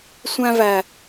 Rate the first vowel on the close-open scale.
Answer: open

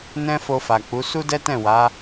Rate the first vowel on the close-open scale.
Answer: mid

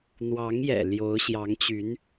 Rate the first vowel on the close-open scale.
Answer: open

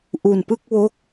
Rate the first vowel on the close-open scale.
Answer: close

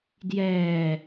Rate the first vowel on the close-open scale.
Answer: mid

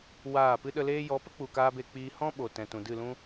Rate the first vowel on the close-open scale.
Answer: open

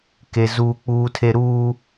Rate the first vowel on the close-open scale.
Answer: mid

